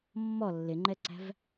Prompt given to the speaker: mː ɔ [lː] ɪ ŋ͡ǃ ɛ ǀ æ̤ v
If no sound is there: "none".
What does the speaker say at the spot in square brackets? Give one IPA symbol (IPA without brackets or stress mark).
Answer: lː